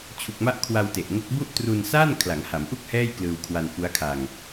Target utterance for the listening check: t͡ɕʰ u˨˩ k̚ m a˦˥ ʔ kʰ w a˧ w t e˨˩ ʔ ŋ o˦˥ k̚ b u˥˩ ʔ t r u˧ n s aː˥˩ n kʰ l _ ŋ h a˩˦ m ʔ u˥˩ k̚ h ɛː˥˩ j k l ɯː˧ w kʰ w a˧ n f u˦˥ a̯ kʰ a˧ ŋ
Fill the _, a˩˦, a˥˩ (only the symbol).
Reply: a˩˦